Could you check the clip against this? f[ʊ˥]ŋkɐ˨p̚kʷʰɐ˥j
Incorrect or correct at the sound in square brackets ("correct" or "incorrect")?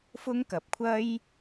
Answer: correct